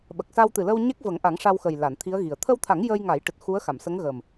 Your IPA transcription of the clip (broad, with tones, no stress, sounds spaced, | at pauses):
ɓ ə˨˩ k̚ s a˧ w t̪ ɨ˨˩ l ə˧ w ɲ e˦˥ k̚ v ə˨˩˦ ŋ ʔ a˨˩˦ ŋ ʂ a˧ w x ə˨˩ j l a˨˩˨ n t̪ʰ i˧˥ ə̯ ɣ i˨˩ ə̯ t̪ʰ ə˧ w t̪ʰ a˨˩˦ ŋ j ə˧ j ŋ a˨˩˦ j ʈ ɨ˨˩ t̚ x u˧˥ ə̯ x a˨˩˨ m s ə˧˥ ŋ ɣ əː˨˩ m